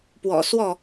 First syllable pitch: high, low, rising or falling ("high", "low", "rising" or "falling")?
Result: low